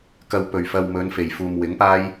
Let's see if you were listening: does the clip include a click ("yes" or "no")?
no